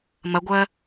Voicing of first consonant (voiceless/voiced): voiced